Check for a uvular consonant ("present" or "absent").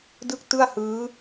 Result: absent